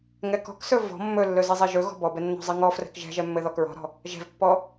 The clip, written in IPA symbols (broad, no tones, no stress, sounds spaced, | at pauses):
ŋ ɛ k ɔ̤ k s ɵ v ɔ̤ mː ɵ lː ɵ z i zˤ ɛ ʒ ɵ ɣ ɔ̤ b ɔ b ɛ nː ɔ̤ zˤ i ŋ ɔ f r ɛ̤ k ʒ ɛ̤ ʒ ɛ mː ɘ ð ɔ k ɹ ɔ̤ ɾ ɔ̤ | ʒ ɛ̤ v pː ɔ